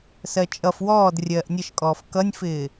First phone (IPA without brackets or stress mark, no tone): s